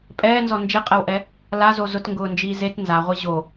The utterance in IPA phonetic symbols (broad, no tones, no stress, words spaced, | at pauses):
pʼɛːnzɔ nd͡ʒeqʼɛwʔɛ | lazo zʊtŋɡʊːnd͡ʒiː zet nzaʁʷi ʑo